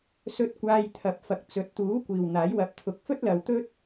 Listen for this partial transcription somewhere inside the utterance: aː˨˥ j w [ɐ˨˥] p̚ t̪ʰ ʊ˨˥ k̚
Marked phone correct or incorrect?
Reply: correct